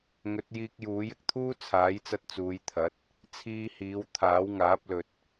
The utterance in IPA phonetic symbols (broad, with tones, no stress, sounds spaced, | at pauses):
ŋ ɵ˨˥ t̚ j iː˧ k̚ j uː˨˥ j ɪ˨ k̚ t̪ʰ uː˥ t͡sʰ aː˨˥ j t͡s ɐ˧ t̚ t͡s uː˨˧ j t̪ʰ ɐ˨˥ t̚ | t͡sʰ iː˧ h iː˨˧ w t̪ʰ aː˨˥ w ŋ aː˨˥ p̚ l ɵ˨ t̚